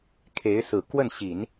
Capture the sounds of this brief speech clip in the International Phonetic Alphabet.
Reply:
kʰe˧˥ɪ̯sɹ̩˨˩ kwə˥˩nɕi˨˩˦n

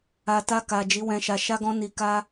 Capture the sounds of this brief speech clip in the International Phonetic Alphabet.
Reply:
a˨ta˧ka˨ d͡ʒi˨˦wɛ̃˧ʃa˧ ʃa˦ɡɔ̃˦ ni˧ka˦

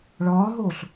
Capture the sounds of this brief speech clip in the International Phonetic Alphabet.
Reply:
ɭɒːɦoːɬ

